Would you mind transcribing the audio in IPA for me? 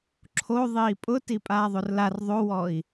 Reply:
ǁʰo ðˤiːpʼʊti pʼaːðˤorlar ðˤowɔi̯

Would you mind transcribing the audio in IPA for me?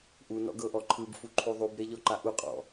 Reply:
ʔunɔ̰ɡɤʔɔ ǃʰɯbfuǃʰu ðˤubɾeʎɔǃa ʔuqʼɔ̰

